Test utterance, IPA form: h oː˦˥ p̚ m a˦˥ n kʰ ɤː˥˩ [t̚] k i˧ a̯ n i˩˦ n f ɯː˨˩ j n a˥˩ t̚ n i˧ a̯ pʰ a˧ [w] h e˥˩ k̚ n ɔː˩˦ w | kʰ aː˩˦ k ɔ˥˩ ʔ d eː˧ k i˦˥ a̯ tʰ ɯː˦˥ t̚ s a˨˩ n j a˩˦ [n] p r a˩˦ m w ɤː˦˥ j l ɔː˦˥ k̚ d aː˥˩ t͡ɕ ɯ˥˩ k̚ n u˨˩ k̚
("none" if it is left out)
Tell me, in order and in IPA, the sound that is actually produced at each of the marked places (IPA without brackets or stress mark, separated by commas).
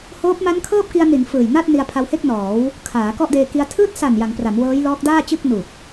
p̚, w, ŋ